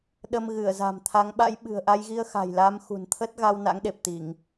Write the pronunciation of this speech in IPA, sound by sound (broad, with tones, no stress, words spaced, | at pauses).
ɗə˧mɣɨ˧˩ə̯za̤˨˩m t̪ʰa˨˦ŋɓa̰˧˥j ɓɨ̤˨˩ə̯ʔa˧jɣi˧ə̯ xa̤˨˩jla˨˦mxṳ˨˩n t̪ʰə˦˥t̚ɣa˧w na̰˧˥ŋɗe˨˩p̚t̪i˧˩˨ŋ